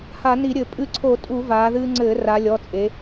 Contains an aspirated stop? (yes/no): yes